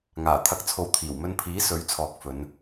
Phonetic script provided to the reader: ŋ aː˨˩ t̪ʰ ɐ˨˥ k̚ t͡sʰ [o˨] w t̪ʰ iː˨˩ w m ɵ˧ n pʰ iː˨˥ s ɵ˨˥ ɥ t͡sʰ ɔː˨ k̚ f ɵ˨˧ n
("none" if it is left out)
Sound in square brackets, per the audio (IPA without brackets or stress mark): o˨